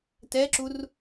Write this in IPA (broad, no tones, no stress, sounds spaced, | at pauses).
t ɛ ǁ u r